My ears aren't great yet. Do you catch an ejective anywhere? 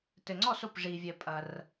yes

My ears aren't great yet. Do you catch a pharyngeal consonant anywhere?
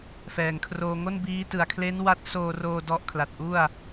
no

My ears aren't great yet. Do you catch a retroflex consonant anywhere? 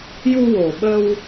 no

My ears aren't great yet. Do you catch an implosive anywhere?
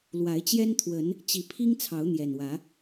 no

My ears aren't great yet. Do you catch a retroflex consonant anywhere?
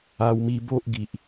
no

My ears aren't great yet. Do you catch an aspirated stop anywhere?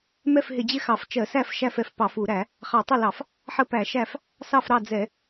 no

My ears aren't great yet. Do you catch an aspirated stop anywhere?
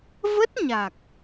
no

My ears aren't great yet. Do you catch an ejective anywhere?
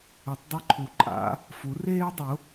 yes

